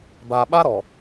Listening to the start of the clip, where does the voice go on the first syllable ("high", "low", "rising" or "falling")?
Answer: low